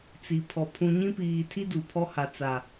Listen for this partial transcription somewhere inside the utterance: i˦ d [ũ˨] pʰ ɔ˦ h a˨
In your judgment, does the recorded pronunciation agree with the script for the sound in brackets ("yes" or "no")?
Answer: no